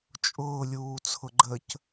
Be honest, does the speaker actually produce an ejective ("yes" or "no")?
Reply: yes